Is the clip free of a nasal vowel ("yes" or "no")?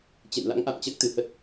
yes